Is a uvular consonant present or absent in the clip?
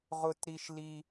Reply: present